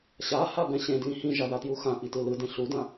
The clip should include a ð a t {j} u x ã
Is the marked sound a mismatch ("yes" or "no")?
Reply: no